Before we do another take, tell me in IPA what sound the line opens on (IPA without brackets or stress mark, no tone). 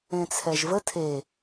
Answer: ẽ